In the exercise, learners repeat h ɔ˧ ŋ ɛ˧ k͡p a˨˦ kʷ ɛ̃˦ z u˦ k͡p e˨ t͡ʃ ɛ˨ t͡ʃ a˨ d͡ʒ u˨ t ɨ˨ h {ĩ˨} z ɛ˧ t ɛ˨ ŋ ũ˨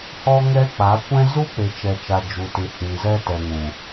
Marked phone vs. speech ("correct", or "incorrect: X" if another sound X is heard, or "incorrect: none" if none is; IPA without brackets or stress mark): correct